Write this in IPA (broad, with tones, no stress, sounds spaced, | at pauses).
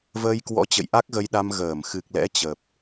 v əː˧ j k w ɔ̰˧˥ t͡ɕ ə̰˧˨ j ʔ a˦˥ k̚ ɣ ə˧ j ɗ a˧ m ɣ əː˧˩ m x ɨ˨˩ k̚ l ɛ̰˧˥ t͡ɕ ə˨˩ p̚